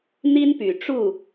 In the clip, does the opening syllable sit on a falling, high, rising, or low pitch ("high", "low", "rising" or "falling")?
high